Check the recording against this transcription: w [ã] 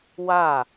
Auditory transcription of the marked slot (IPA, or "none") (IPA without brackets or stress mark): a